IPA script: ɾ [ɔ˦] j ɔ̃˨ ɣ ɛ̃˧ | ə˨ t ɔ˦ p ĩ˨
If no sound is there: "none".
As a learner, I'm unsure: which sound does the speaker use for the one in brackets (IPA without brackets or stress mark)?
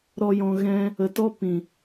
ɔ˨